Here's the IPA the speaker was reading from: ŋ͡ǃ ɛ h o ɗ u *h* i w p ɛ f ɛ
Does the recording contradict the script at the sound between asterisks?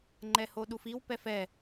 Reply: yes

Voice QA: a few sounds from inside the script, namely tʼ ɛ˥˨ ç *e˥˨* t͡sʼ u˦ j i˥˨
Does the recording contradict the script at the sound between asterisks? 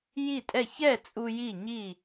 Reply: yes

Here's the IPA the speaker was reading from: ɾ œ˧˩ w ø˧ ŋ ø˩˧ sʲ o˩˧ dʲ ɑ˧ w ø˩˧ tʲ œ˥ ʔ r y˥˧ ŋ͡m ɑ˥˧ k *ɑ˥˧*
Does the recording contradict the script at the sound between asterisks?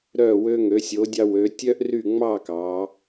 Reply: yes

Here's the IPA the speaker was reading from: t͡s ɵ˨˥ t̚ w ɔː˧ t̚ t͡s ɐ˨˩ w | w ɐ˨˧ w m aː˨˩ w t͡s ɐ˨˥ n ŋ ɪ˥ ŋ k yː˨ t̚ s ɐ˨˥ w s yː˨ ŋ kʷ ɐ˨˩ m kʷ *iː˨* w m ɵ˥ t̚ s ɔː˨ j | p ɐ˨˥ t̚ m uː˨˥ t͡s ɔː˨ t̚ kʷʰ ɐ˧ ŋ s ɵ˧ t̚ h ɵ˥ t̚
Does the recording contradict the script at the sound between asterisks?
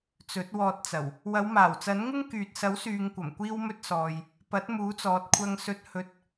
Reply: yes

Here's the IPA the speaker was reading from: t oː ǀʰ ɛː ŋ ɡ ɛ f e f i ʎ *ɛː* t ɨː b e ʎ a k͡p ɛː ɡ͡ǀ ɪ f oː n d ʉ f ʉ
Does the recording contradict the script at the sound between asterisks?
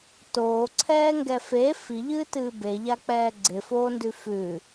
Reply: yes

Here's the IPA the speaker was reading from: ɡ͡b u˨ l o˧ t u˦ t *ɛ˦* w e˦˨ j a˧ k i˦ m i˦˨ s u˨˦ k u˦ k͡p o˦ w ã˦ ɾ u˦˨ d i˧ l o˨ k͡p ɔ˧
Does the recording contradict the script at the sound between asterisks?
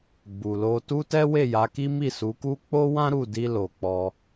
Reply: no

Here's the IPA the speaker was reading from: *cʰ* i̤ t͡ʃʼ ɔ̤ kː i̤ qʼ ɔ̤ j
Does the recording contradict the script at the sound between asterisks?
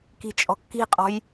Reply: yes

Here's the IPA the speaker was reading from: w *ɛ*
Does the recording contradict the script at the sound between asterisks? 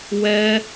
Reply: no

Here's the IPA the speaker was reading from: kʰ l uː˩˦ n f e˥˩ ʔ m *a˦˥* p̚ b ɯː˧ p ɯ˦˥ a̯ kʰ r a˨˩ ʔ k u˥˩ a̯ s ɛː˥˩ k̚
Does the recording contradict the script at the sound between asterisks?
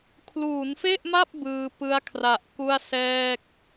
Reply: yes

